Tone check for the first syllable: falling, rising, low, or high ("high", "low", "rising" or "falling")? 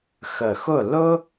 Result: low